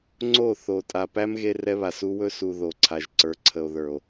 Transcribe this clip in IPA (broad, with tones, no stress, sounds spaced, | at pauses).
ŋ͡ǀ o˦˨ θ o˨ tʼ a˨ p æ˦ m ɣ e˦ r ɛ˦ β a˨ s u˦ w ɵ˦ s u˨ ð o˨ ǀʰ a˨ ʒ ǀ ə˞˨ ǀʰ ə˨ o̯ ð ə˞˨ o̯